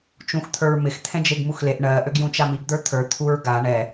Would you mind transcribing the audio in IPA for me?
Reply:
t͡ʃ ũ x t̪ʰ ə˞ ɹ m ɪ x t̪ʰ ɛ̃ d͡ʒ e ɡ m u x l e ʔ ɳ ɜ ʔ ø ɡ j ũ t͡ʃ a m i ɡ d̪ ə˞ t̪ʰ ə˞ t̪ʰ u ɹ ɡ a ɳ ɛ

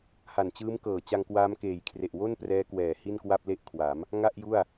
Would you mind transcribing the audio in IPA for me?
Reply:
h a˨˩ n t͡ɕ ɯː˦˥ m k ɤː˨˩ t͡ɕ a˧ ŋ k w aː˦˥ m k eː˨˩ j kʰ r e˨˩ ʔ w o˥˩ n p r ɛː˦˥ k w ɛː˨˩ h i˥˩ n k w a˥˩ p̚ l e˥˩ ʔ kʰ w a˩˦ m | ŋ a˥˩ ʔ j u˥˩ a̯

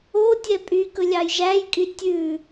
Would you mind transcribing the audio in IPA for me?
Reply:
o tʲ ɛ pʼ y k ɵ lʲ ɑ j ʒ æ j kʼ y tʲ ʉ

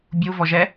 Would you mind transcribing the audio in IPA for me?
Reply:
bʲ u v ɔ ʒ ɛ

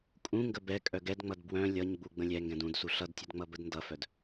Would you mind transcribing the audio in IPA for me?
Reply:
kʼ ũ ŋ ɡ ə b ɛ kʼ œ ɡ ɛ d ŋ͡m ʌ d b w œ̃ lʲ ʌ ɲ ɡ͡b u ɡ͡b ə̃ lʲ ɛ ŋ ɡ ɛ̃ d ũ d s u ɬ ʌ d tʲ ə d ŋ͡m ʌ b ə d n d ʌ f œ d

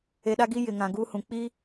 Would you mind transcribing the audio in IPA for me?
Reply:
e˨ ɗ a˦ ɡ i˦ j ɪ˨ ŋ ã˨ ɡ uː˦ h ũ˨ k͡p i˦

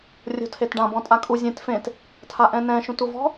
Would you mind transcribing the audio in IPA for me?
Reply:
rʲ o̤ tʰ e t ɖ ã b ɔ̃ tʼ a kʼ u zʲ ẽ t f ẽ t | tʰ a ʔ ɛ̃ n ɛ̃ ʃ ũ t u v ɔ̤

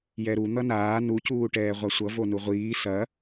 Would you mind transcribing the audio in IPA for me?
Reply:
j ɛ ɾ u n̪ ʌ n aː n u c uː ʈ ɛː ʁʷ a sʷ ʌ v o n u ʁʷ iː s ɐ

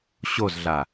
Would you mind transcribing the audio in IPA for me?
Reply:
ɕ o z ɮ a

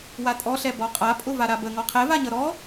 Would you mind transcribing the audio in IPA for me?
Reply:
w a tʼ ɔ ɬ ɛ b ɔ qʼ a pʼ ʊ v a ɾ a b ə ŋ ɔ qʰ ɛ v a ɲ ʌ ɾ ɔ

